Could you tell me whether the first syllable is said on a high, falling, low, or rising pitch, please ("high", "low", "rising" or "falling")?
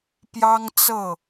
high